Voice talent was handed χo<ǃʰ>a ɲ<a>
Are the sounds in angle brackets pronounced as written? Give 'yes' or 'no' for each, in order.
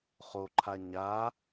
yes, yes

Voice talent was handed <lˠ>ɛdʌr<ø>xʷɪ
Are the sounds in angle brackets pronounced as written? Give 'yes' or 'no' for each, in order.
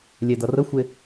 no, no

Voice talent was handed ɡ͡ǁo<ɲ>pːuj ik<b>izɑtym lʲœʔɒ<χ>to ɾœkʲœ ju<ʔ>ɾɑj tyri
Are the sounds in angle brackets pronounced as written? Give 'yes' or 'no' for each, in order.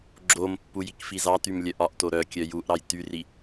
no, no, no, yes

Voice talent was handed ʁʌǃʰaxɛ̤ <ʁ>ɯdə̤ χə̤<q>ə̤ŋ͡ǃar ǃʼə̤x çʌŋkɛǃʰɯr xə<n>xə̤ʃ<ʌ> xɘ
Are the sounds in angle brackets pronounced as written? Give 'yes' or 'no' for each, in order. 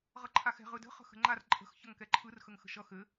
yes, no, no, yes

